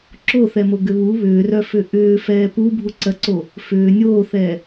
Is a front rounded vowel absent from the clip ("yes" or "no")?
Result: no